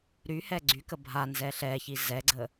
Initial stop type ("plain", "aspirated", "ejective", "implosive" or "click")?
click